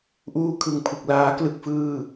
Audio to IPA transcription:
ʔ uː˧ kʰ ɯ˨˩ ŋ pʰ ɯ˨˩ k̚ l aː˦˥ k l ɯ˥˩ k̚ f ɯː˥˩

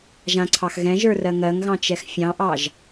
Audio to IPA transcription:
ʒ ã ǀʰ ɑ x ɣ ɛ̃ ʒ ə˞ r ɜ ŋ ɜ ŋ ɣ ɑ̃ t͡ʃ ɛ x fʲ ɑ̃ ʔ ɑ ʒ

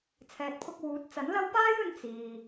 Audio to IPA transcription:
t͡sʰ ɛː˨ t̚ pʰ ʊ˧ k̚ w uː˨˥ t̚ t͡s ɐ˨˥ n l ɐ˥ w p aː˥ j ɵ˧ n t͡s iː˨

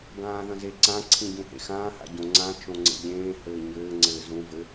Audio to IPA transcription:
ɡ ãː ð ɐ̃ z e ǀ ã ǀʰ ĩ ɟ ũ h ḛ x ãː h a̰ ɟ õ ŋ͡ǀ ã t͡ʃ õ ŋ͡ǀ ḛ ʎ ẽː h ɘː ɲ ɘː ŋ͡ǀ ɘː z ũ v ɘ

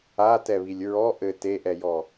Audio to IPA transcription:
a t ɛ β i lʲ ɹ ɔ ʔ ɘ t e ʔ ɛ j ɔ

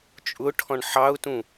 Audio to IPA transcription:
t͡ʃʼ ʊ ʈʰ ɔ̃ ɳ ħ ɑ ʊ̯ t ũ

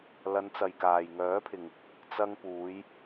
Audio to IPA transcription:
l ɐ˨˧ n t͡s ɐ˨ j k aː˨ j ŋ œː˨˥ pʰ ɪ˨ ŋ | t͡s ɐ˧ ŋ p uː˨˧ j

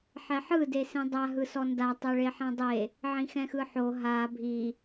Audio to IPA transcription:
ħ ɛ ħ ɯ d e s ĩ dˤ a ɦ ɯ s ɔ n d a tˤ ɤ ɭ e ħ ɛ̃ dˤ e | ʕ ĩ x ɛ̃ x ɯ ħ o ɦ a bʱ i

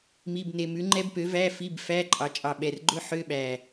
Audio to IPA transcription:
m i˧˥˧ b n e˧ m ʉ˨˥ ŋ͡ǃ ɛ˦˥ b p ø˨˥ v æ˧˥˧ f i˧˥˧ b f æ˧˥˧ ǃʼ ɑ˩˧ t͡ʃʼ ɑ˨˩ ɓ ɛ˨˩ r ɡ͡ǃ ɵ˧ ħ ø˧˥˧ ɓ æ˨˩

